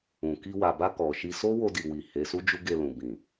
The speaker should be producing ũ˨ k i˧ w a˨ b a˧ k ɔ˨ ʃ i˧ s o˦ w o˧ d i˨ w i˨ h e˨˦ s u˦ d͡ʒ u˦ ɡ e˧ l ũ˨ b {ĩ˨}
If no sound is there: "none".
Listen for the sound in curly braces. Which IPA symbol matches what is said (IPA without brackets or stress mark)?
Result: ĩ˨